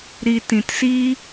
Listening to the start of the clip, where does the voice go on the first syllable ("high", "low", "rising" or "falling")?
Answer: low